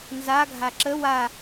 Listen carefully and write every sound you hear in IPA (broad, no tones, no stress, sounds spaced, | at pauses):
n z a ɡʱ a ǁ ə w a